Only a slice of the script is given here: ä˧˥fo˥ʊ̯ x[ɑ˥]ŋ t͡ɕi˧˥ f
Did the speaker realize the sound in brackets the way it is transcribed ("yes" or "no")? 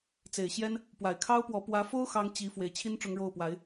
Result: yes